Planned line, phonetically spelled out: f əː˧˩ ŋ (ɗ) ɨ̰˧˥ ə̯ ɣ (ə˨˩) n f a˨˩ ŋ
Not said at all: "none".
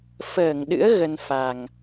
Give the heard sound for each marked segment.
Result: ɗ, ə˧

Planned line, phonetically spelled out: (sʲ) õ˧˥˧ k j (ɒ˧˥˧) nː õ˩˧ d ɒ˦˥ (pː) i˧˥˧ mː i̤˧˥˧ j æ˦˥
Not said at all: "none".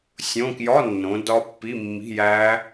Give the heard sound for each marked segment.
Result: sʲ, ɒ˧˥˧, pː

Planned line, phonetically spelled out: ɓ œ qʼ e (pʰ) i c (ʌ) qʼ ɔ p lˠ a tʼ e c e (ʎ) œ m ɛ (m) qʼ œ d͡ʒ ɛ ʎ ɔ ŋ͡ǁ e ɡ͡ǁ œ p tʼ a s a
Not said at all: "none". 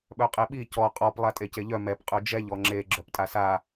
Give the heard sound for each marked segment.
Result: ɓ, ɔ, ʎ, p

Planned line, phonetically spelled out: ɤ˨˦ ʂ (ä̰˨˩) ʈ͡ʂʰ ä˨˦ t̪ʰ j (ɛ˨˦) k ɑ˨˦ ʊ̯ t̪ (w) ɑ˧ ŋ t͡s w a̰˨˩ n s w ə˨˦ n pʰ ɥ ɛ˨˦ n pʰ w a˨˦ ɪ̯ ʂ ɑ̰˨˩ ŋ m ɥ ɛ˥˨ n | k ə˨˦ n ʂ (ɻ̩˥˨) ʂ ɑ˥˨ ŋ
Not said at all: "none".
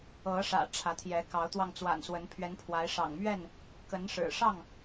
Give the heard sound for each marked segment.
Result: ä̰˨˩, ɛ˨˦, w, ɻ̩˨˩

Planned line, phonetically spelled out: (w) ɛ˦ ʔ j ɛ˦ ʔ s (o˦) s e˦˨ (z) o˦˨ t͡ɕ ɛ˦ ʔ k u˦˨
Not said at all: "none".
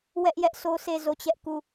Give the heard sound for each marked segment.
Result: w, o˦, z

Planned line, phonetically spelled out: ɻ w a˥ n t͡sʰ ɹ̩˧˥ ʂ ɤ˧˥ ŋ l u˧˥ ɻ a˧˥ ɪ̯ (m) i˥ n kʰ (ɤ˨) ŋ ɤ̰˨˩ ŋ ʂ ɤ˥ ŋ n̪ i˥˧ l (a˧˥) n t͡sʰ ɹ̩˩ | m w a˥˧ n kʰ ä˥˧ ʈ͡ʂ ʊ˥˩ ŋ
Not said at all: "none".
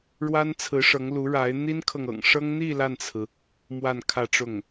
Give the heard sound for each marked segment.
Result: n̪, ɤ˨, a˥˩

